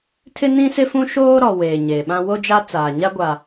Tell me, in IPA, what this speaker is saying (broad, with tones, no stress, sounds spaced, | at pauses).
tʰ ɪ˦ n ĩ˦ s ɪ˦ f ũ˦ ʃ oː˦ ɾ ɔ˨ w eː˨ ɲ e˨ ɓ ã˦ w o˦ d͡ʒ a˦ t͡s aː˨ ɲ a˦ ɡʷ a˨